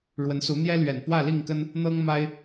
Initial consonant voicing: voiced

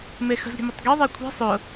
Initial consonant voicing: voiced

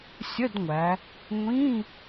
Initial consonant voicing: voiceless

